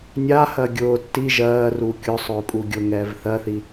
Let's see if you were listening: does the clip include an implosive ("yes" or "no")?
no